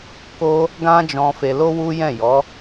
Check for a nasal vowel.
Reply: present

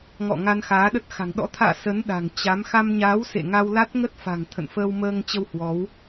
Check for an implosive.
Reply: present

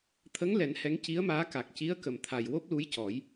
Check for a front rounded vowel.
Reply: absent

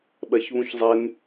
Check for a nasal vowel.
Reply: present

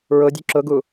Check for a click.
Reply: present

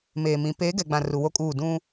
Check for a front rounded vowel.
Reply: absent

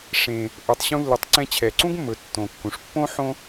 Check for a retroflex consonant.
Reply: present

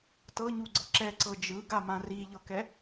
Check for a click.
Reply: present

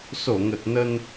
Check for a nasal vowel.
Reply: absent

